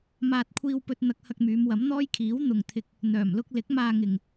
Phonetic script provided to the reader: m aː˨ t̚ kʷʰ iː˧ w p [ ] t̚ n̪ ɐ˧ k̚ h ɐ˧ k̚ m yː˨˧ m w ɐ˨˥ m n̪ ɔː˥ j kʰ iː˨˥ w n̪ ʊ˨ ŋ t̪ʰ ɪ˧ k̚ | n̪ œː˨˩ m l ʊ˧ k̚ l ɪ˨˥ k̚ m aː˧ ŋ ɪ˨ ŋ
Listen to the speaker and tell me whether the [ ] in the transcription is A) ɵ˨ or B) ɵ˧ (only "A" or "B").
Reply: B